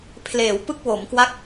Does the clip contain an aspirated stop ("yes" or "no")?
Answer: yes